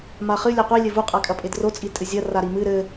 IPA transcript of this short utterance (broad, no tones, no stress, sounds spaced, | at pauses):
m a χ ɨ lʲ ɛ qʷ i lʲ ɘ v u qʼ a kʼ ɐ pʼ e d r o t͡sʼ i tʼ ɨ zʲ ɐ r a ɾ i m ɨ ɾ ɘ